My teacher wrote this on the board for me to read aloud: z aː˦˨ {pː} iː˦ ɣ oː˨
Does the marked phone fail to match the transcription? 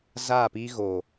yes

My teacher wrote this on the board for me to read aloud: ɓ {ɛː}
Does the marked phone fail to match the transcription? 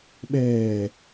no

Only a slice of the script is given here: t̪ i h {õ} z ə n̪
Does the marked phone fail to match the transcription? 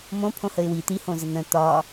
no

